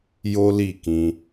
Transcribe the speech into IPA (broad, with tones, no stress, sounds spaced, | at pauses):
j o˦ l i˦˨ k ĩ˧